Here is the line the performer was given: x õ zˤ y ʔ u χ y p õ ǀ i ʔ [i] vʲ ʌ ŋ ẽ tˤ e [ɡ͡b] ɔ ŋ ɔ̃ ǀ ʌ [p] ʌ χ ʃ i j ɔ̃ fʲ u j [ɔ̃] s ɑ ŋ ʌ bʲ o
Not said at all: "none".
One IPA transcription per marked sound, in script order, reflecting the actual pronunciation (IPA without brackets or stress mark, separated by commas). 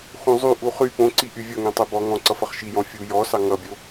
y, b, f, ɔ